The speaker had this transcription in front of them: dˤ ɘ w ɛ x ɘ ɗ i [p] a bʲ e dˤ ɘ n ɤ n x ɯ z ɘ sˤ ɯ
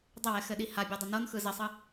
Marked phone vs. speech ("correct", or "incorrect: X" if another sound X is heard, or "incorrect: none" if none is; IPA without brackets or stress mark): incorrect: h